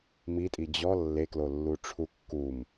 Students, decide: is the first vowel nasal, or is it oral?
oral